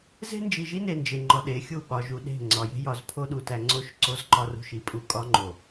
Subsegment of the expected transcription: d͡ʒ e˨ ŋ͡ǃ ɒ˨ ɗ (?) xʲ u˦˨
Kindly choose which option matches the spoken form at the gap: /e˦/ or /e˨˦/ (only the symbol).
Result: e˨˦